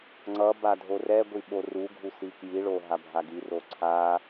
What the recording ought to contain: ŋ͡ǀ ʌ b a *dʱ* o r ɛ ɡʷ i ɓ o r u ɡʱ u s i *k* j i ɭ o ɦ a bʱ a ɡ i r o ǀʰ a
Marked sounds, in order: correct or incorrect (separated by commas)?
correct, correct